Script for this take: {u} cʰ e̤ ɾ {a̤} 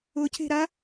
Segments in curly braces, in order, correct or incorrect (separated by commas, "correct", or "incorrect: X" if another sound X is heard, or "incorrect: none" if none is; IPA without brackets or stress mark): incorrect: ʊ, incorrect: a